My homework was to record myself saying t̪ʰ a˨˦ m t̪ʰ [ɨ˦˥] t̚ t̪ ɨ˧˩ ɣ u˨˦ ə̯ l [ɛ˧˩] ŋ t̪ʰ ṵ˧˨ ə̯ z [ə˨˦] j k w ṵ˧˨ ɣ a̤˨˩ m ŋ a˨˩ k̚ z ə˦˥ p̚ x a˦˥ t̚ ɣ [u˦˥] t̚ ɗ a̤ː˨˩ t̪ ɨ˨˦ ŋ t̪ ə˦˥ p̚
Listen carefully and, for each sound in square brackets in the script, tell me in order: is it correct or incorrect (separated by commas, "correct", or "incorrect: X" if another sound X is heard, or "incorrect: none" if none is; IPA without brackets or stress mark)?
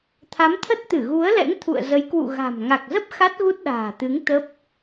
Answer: incorrect: ə˦˥, incorrect: ɛ̰˧˥, correct, correct